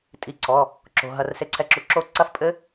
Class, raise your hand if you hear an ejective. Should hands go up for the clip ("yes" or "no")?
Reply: yes